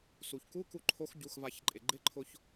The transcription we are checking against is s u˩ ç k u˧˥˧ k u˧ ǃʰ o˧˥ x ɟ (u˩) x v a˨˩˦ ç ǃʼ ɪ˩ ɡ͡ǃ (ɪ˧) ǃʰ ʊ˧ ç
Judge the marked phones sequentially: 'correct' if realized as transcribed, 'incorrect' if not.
incorrect: u˩˧˩, incorrect: ɪ˧˥˧

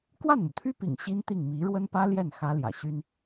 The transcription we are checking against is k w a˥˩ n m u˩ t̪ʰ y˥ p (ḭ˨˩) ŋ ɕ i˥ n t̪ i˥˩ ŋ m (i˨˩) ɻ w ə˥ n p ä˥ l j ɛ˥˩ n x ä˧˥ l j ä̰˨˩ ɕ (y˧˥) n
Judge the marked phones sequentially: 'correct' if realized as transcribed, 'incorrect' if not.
correct, incorrect: i˧˥, incorrect: y˥

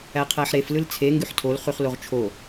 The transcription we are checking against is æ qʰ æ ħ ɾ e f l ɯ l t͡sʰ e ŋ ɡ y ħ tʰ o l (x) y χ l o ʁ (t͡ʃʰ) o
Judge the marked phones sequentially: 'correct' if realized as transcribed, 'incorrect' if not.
incorrect: χ, correct

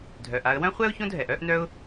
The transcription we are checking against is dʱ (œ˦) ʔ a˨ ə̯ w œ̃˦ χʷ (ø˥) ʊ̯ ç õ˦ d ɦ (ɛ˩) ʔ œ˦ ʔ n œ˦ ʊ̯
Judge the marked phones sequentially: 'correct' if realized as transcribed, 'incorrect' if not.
incorrect: œ˩, incorrect: ɛ˥, correct

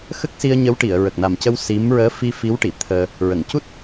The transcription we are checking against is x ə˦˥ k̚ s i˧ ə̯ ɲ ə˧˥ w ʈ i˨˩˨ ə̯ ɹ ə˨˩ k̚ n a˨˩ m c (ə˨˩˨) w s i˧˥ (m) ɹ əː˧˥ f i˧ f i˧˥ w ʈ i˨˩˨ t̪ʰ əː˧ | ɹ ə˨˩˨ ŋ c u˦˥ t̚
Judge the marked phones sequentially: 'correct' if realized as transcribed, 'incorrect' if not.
incorrect: ə˧, correct

